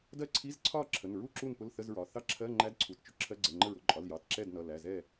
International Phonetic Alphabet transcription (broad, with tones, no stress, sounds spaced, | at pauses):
d ɜ˥˨ ǀʰ i˧˥˧ z ǀʰ ɒ˥˨ ǁʰ ə˩˧˩ n ɹ u˥˨ ǁ u˥˨ n p ʊ˧˥˧ l θ ə˧˥˧ z ɹ ɒ˩˧˩ θ ɑ˥˨ ǁʰ ɜ˧˥˧ ŋ͡ǃ æ˧˥˧ d ǀʰ u˩˧˩ t t͡ʃ ʊ˧˥˧ ǁʰ ɜ˧˥˧ ɡ͡ǀ ɛ˩˧˩ ŋ͡ǃ ə˥˨ ɹ ʊ˩˧˩ ǃʼ ɒ˩˧˩ l j ɑ˩˧˩ t ǁ ɛ˥˨ d n ʌ˩˧˩ l æ˩˧˩ z ɛ˥˨